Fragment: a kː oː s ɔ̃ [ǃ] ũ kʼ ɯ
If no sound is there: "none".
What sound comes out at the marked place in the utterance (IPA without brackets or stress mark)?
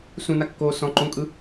ǃ